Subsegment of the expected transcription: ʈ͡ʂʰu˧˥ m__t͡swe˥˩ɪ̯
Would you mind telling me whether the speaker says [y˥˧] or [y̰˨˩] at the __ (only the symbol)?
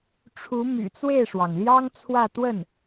y̰˨˩